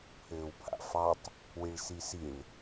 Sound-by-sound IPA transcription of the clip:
pʰɘːwpʰa̰fɑtˤ | wiɭsisiɭ

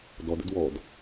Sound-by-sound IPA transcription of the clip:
dɔd ə̰dwɔd

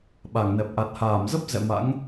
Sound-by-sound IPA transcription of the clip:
ɓa˧˩ŋnɛ˨˩p̚ ʔa˨˩t̚haː˧˩mzə˦˥p̚ zɛ̰˧˨ma̰˧˥ŋ

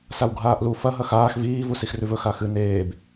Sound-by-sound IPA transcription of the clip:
sawɡʱaːʔlu fɐ ɦɐxaːx viː vusixrʉvɵ xaxɨ neːb

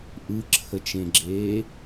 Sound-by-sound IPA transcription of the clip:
ʔɯǁʰət͡ʃẽɡ͡ǁeː

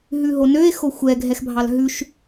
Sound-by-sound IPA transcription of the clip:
ɦʉɦonøe̯ xoxʷɛ ɡʱɛxbʱɑlɦʉʃ

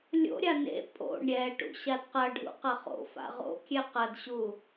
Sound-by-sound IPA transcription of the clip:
lʲo̰ɾʲa nḛ pʼo̰ɳ ɾʲɛʈṵ ɕadqɐɖʱṵ qɐχo̰fa̰ ʁo̰kʲɛ qɐdɕu

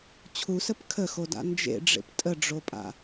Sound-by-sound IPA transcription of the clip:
t͡ɕʰusəp kʰəxoda̰ nd͡ʒḛɖ͡ʐḛp tʼəɖ͡ʐopʼa̰

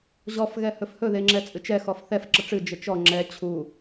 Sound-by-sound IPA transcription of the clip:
ʑɔf ɣɛhɵfhɵ ðeŋ͡ǁɛt͡sʼɨt͡ʃɛ xɔfθɛf ǁəʈ͡ʂɨ d͡ʒət͡ʃɔ ŋ͡ǁɛ t͡ɕʰu

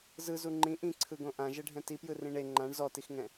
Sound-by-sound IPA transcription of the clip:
zɯzu ŋ͡ǃĩ ʔĩǀʰɯɡõ ʔãʒɛɖʱɛ̃ tipjɯrĩ ɳe ŋ͡ǃãɳ zɔtixŋɛ̃

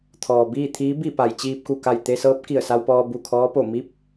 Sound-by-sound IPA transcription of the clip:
t̪ʰɔː˩biː˥˨t̪ʰiː˧˥ bi˥˨pa˩j t͡ɕiː˧p̚ku˧˩ka˧˩j t̪e˧sɤː˧˥p̚ ki˧˩ə̯sa˧wpɔː˧ bu˧˩kʰɔː˧˥po˧˩ mi˧˥p̚

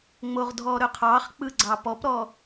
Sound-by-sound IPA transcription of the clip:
ŋ͡moʁdʱɔɾɵqʰɑχ k͡pɯɡ͡ǀɑpɔpɾɔ

